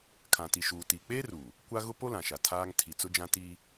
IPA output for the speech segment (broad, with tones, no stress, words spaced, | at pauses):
kʰã˨ti˨ʃuː˨ tiː˨k͡peː˦ruː˨ | kʷa˦ɣʊ˦ po˦lã˨ʃa˨ tʰaː˦ŋ tʰi˨t͡sʊ˦d͡ʒã˦ tiː˦